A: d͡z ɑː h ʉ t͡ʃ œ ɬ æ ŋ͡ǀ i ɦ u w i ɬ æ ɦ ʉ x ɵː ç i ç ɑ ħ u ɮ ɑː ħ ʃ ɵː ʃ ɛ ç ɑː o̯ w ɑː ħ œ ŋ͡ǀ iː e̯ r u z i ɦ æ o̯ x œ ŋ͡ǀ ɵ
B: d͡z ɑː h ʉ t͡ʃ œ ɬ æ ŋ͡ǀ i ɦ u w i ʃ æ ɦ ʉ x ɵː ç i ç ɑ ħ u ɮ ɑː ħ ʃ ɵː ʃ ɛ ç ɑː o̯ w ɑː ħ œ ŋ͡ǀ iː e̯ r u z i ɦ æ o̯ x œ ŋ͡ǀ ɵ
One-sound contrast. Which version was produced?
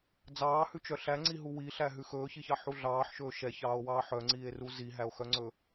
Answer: A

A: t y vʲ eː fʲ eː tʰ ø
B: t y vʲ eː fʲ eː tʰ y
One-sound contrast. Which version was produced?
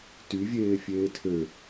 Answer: A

